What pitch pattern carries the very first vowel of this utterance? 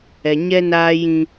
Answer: low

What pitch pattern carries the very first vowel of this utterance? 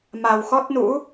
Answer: low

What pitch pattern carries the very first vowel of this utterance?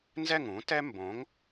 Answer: falling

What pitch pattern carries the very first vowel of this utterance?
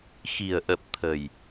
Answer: low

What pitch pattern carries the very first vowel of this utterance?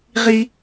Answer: high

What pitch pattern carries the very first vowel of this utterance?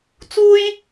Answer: high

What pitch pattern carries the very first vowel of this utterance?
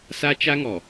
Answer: high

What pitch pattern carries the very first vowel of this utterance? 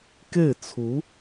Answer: falling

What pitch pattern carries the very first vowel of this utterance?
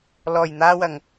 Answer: low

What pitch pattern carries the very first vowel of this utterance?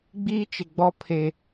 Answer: high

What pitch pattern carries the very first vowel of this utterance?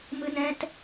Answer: high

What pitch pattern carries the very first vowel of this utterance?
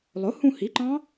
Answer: rising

